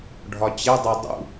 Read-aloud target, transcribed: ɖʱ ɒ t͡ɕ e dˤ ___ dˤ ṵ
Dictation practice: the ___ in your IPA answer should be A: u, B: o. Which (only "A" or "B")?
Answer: B